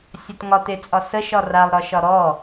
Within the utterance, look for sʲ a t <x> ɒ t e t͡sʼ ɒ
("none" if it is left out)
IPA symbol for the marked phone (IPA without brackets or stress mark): ŋ